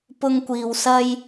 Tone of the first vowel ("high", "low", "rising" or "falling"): high